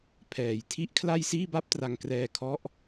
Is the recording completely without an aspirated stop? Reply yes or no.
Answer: no